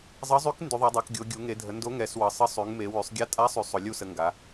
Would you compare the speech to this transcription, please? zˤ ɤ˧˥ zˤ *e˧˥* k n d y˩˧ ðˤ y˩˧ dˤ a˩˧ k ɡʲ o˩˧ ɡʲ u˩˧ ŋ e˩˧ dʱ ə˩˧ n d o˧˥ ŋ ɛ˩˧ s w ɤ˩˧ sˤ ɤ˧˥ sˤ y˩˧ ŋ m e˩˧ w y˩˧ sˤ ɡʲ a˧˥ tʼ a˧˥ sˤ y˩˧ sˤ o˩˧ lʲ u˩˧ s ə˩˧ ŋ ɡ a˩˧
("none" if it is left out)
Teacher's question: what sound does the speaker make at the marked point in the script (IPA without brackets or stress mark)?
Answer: y˧˥